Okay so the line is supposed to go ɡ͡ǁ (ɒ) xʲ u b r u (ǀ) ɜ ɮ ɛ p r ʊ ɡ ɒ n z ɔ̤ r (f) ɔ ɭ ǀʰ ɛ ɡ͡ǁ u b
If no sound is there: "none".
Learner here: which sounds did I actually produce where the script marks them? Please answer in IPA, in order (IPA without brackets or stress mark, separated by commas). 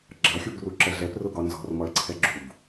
ɑ, ǁ, m